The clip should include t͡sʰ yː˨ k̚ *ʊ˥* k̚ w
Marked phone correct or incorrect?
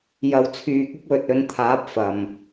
correct